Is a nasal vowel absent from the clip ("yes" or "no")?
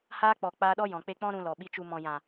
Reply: no